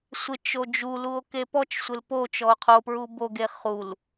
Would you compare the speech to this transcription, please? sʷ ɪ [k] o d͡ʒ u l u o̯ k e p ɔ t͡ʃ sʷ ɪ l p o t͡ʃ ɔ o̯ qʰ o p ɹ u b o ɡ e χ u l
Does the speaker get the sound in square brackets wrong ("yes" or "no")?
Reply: yes